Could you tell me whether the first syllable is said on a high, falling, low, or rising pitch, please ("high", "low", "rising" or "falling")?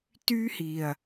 high